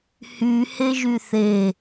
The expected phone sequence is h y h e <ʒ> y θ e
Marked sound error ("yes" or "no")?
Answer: no